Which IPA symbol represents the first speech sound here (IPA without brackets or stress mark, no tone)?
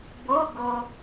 b